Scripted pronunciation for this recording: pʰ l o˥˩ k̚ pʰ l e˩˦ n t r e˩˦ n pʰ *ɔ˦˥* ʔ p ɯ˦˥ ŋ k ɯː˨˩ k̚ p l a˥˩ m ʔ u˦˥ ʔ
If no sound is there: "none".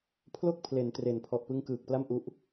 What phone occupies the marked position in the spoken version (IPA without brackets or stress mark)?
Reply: ɔ˨˩